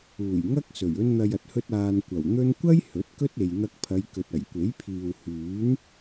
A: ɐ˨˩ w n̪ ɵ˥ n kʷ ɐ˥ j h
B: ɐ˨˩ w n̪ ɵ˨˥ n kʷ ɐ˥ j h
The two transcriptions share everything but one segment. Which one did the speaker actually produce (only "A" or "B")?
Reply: A